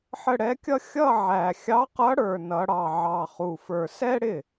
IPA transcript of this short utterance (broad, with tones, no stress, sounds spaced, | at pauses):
ħ ə˥˧ ɽ ɛ˧˥ kʲ ʌ˥ xʲ ʌ˥˧ ʕ æ˨˩ xʲ ɑ˧˥ q ʌ˧˥ ɽ ə˞˨˩ n ʌ˩˧ ɽ ɑ˨˩ ʕ ɑ˨˩ χ u˨˩ f ə˞˨˩ s ɛ˥ ɽ ɪ˥˩